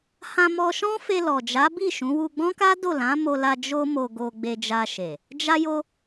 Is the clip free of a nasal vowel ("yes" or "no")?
no